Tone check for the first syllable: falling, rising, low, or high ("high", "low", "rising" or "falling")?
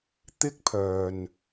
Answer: high